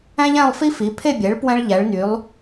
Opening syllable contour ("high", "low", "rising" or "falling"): high